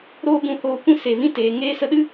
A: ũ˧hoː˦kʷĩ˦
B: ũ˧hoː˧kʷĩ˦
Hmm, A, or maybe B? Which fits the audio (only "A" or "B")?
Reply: B